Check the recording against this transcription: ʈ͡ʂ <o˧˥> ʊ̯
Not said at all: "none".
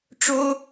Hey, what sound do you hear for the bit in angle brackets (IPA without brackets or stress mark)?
o˥